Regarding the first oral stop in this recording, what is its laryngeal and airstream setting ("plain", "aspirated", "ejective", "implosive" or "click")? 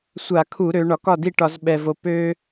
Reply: aspirated